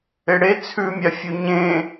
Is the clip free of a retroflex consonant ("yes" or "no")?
no